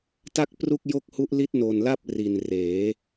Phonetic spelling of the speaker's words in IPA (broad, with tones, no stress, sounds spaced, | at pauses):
t a˥˩ k̚ p r u˥˩ k̚ j o˥˩ k̚ h u˦˥ ʔ l i˦˥ t̚ n o˨˩ n l a˥˩ p̚ r i˨˩ n r eː˩˦